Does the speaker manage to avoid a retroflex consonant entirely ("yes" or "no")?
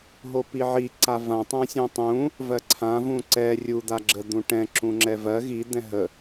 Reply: no